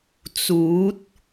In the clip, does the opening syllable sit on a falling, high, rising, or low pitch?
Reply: rising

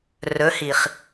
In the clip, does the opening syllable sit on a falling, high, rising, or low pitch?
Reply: rising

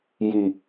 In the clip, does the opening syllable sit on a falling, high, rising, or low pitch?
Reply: low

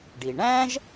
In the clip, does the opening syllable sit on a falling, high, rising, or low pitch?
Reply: low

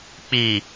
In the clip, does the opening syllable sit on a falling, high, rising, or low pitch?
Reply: low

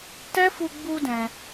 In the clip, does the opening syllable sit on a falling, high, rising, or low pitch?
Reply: high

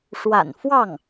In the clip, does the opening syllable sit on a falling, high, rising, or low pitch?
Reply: low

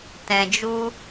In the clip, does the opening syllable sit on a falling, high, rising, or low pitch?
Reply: low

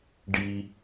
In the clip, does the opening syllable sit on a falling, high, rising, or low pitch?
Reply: low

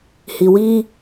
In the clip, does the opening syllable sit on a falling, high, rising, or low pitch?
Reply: low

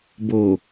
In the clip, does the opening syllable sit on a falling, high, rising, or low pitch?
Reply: low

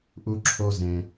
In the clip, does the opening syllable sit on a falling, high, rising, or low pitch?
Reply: high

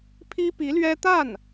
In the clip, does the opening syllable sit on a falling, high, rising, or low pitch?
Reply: high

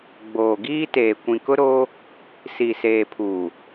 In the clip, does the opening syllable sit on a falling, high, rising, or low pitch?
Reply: low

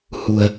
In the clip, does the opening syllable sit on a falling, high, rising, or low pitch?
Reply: low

